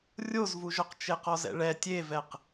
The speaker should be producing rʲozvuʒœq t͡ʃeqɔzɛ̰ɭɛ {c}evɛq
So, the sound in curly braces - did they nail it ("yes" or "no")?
no